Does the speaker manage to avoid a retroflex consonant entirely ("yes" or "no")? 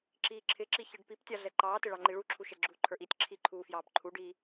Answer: no